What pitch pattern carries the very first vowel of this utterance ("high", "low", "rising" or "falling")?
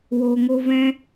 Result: low